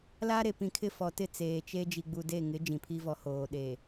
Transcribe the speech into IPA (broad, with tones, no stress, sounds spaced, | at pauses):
l a˦ ɾ e˨ p ĩ˨ kʰ ɪ˦˨ f ɔ˨ t ɪ˦˨ t͡s eː˨ t͡ʃ e˦ d͡ʒ i˨ ɡ͡b u˨ d e˦˨ ŋ ɪ˨˦ d͡ʒ ĩ˨ pʰ i˦ v ɔ˨ h oː˨ ɗ e˨